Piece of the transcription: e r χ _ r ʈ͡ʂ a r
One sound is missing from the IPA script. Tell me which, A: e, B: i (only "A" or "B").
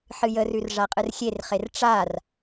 A